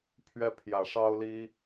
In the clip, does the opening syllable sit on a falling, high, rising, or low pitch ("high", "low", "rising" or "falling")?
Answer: high